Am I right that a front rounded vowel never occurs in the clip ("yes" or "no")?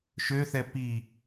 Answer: no